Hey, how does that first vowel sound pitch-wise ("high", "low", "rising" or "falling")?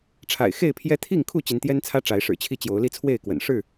low